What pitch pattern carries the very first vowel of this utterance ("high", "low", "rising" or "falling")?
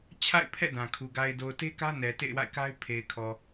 falling